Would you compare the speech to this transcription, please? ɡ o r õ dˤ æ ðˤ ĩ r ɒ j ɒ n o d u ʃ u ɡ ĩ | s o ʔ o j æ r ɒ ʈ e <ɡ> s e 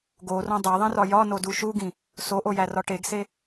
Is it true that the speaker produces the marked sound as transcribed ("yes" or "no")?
yes